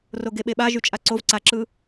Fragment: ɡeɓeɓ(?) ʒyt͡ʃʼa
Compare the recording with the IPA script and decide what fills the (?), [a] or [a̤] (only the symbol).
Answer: a